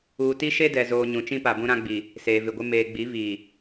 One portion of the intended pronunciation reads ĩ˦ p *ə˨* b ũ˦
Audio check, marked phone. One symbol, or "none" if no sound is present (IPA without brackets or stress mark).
a˨